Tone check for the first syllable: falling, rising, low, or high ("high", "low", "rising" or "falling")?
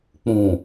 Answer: low